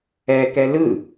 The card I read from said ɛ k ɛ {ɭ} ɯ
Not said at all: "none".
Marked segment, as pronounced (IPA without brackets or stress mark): l